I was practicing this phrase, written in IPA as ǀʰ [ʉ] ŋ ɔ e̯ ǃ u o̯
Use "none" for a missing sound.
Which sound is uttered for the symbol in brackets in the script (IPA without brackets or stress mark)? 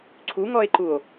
u